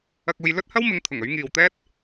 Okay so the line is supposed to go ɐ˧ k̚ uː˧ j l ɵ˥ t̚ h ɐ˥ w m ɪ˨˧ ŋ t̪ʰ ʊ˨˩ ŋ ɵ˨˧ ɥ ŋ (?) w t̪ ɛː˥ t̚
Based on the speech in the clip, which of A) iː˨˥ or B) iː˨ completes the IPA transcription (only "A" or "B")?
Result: B